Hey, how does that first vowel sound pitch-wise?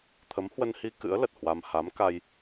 rising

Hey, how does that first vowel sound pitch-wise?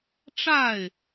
falling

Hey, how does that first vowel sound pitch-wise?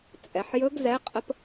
low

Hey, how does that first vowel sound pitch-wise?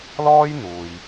high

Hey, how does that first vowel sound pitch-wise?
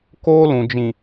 high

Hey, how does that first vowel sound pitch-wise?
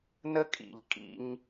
high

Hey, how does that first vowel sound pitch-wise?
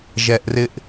low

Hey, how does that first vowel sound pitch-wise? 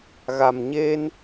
low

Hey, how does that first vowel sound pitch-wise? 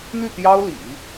falling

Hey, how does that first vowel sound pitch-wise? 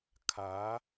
rising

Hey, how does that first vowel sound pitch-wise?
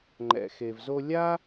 low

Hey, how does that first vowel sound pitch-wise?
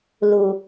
low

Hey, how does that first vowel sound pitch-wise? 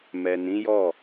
low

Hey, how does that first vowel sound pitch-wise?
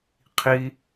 high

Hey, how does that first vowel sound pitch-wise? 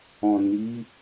low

